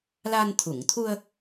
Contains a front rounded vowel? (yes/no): no